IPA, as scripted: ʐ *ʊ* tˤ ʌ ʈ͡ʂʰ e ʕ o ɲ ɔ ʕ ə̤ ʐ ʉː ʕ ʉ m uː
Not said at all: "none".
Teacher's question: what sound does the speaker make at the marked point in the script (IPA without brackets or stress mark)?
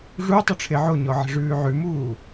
u